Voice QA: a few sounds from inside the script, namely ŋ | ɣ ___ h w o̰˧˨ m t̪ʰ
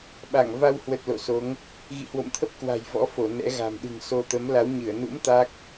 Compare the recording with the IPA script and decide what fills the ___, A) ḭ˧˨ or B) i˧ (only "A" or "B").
A